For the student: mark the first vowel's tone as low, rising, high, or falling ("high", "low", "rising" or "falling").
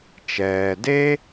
low